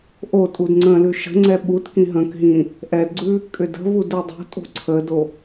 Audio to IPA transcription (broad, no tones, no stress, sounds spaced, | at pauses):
ʔ o tʼ u d ŋ͡ǀ ə̃ l ʉ ʃ ə̤ ŋ͡ǀ ɛ ɓ u t k ĩ ɦ ə̃ k ɦ ĩ | ʔ ɛ d ɡ͡ǀ ʉ | kʼ ʏ d ə̤ v u d u dˤ o̤ tʼ o̤ ǀʰ ə d o